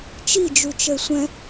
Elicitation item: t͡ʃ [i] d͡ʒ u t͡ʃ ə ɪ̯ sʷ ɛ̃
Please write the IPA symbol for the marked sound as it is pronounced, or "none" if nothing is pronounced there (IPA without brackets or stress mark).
i